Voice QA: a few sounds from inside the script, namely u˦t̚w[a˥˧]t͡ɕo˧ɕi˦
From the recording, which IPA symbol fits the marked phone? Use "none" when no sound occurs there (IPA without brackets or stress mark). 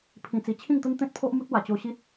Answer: a˨˩